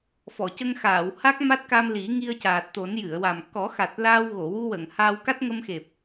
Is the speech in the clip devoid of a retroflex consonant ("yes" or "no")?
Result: yes